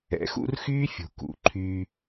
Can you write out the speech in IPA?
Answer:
ɛ̰˨˦xṵ˦r xyː˦fʲṳ˨ kṵ˨ ǃʰy˧

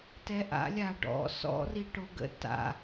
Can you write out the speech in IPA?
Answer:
tɛʔa̰ lʲaɖɔ̰ sɔ̰ riʈoɡə̰ ta̰

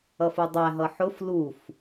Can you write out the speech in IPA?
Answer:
ʌfudˤæ ɦʌħʊf luf

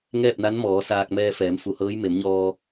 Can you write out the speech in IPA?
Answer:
ŋɛː˥˨p̚na˧˥n mɔː˩˧saː˧k̚ mɛː˧fɛː˩˧m fu˩˧hɤː˧˥j me˩˧mɲɔː˧

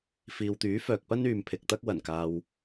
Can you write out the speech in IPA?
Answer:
fiː˨wt̪yː˨˥ fœː˨k̚pɐ˥n yː˨m pʰɪ˨k̚t̪ɐ˥k̚ wɐ˨˩n kaː˨w

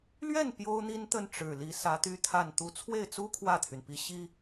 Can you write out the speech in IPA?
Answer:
lɥɛ˥˩n pjo˥ʊ̯n̪i˥nt̪ə˥˩n ʈ͡ʂɻ̩˨˩li˧˥ sä˧˥t̪y˥t̪ʰa˥˧nt̪u˥˧ t͡sʰwe˥˩ɪ̯t͡su˥ kʰwä˥˩t̪ʰy˩npi˧˥ ɕi˥

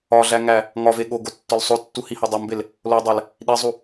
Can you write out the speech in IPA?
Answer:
ɒɮæŋæ | ŋɒve ɠoɡotːɒl sˤotːuhihɒ dˤombel | lodˤæl | ɗizˤu

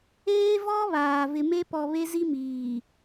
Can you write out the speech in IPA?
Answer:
eː˦vɔ˦βaː˨vɪ˨ me˦pɔ˨ βe˦zi˦miː˨

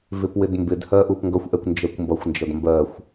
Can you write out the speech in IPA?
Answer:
vɪpwɪdmbɪdhɜ ʔupŋɡʌxʷʔɛkʷ nd͡ʒɜkʷmbʌxʷnd͡ʒʌd mbɜxʷ

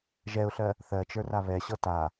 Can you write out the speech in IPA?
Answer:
ʒɛʊ̯ɬɜ | θɜt͡ʃə˞ra βɛɕɤ ta

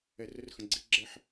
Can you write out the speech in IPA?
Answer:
ɛ˨rə˦rxə̃˨ ɡ͡ǀi˦ ɡ͡ǁɛ˦ħ

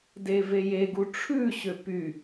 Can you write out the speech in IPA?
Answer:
devejeɡu ʈ͡ʂʰʉɕø py

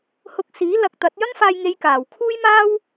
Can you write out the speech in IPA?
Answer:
hʊ˧k̚siː˨˥ lɐ˨k̚t̪ɐ˨˥t̚ jɐ˥ŋfaː˧jŋe˨˧j kaː˨˩w kʰuː˥jmaː˥w

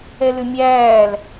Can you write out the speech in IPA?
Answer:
ɛlʏmʲæːl

